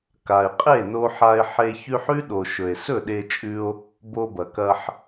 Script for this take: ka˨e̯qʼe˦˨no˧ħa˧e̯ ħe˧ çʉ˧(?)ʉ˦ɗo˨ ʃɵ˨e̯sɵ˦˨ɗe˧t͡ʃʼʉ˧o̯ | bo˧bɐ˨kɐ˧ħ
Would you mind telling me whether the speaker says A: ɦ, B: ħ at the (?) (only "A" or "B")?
B